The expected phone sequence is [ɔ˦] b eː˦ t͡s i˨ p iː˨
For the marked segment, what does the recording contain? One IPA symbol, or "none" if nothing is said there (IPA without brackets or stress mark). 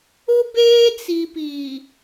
ʊ˦